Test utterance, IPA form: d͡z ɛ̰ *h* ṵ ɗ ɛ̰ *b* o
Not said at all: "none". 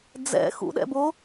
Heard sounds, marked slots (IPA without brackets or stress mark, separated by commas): x, b